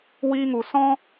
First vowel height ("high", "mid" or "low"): high